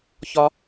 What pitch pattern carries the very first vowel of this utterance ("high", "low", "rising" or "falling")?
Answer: high